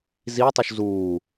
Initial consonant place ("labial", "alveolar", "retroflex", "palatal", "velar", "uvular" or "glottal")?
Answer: alveolar